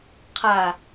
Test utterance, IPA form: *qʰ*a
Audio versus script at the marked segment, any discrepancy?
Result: no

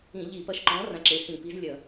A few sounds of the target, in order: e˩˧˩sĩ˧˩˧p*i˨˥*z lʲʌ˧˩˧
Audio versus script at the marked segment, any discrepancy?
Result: no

